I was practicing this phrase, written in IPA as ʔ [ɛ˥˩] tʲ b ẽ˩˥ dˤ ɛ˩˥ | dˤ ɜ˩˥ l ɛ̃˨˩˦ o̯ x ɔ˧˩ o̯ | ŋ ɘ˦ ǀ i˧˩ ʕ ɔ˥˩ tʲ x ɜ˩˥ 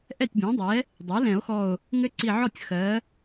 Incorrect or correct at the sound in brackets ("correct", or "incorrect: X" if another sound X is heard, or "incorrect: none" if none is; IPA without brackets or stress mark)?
correct